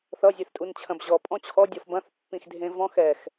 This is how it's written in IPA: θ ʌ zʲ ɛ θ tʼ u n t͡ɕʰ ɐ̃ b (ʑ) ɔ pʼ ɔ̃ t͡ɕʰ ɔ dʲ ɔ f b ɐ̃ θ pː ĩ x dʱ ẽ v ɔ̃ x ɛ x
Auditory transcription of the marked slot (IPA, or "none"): ʑ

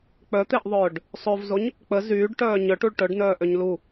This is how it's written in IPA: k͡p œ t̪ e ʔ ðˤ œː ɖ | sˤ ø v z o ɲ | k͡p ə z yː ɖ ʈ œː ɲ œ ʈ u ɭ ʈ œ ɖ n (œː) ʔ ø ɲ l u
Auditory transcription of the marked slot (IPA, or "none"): œː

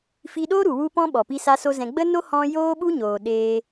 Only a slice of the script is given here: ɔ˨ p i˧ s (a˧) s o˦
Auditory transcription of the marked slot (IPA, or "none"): a˧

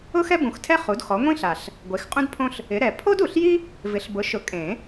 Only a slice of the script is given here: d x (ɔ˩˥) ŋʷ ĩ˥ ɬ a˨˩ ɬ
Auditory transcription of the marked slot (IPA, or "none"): ɔ˩˥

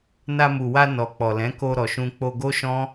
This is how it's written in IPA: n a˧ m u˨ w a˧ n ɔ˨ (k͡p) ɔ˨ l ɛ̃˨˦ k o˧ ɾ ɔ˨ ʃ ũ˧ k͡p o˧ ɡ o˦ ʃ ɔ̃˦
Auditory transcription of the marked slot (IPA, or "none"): k͡p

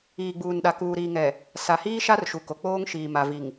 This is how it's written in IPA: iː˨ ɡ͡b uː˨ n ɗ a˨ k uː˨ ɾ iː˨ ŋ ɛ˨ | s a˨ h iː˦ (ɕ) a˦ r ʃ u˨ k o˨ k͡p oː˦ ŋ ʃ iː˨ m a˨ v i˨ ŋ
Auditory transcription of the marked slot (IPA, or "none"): ʃ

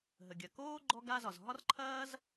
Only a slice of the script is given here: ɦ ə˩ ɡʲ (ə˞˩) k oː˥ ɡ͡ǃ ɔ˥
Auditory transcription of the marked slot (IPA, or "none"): ɐ˩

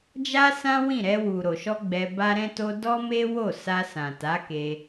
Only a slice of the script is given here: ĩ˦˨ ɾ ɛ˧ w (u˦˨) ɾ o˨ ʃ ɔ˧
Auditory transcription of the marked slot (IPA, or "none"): u˨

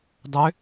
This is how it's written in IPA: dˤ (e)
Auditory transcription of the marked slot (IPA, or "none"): ø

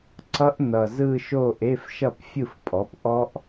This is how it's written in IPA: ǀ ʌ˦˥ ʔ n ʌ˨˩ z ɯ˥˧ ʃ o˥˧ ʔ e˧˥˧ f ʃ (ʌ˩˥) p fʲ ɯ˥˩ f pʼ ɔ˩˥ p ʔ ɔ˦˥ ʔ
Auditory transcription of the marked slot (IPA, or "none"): ʌ˥˩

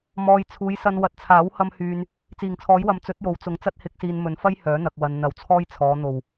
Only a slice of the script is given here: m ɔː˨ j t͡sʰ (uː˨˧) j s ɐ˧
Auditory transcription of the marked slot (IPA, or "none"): uː˨˧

